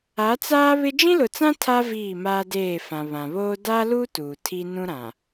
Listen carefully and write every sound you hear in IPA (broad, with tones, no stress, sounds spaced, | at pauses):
a˨˦ t͡s aː˦ β ɪ˦ d͡ʒ ĩ˦ l ʊ˨ t͡s ã˦ tʰ a˦ v iː˦˨ m aː˦ d eː˦˨ f ã˨ β ã˨ β oː˦ d a˦ l u˦ t uː˨ tʰ i˦ n ũ˦ ɾ ã˨